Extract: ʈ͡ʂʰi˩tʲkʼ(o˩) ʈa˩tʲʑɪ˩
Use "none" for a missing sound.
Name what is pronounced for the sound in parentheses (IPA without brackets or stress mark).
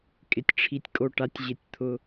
o˩